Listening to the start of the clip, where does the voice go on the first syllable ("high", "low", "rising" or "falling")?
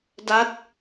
falling